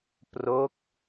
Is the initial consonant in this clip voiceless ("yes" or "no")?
yes